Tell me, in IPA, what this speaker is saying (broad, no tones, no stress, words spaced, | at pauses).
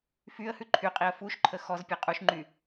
fyə̯hʉ ǃʰyqʼiə̯ fuʃǃʰə xɔzpʲɛ qʼuʃŋ͡ǃy